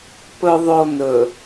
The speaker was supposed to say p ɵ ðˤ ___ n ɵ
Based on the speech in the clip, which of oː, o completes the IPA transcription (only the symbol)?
o